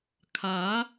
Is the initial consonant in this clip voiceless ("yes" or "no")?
yes